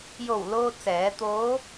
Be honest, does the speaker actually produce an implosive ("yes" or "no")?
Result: no